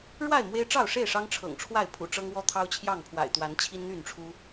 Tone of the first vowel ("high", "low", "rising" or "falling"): falling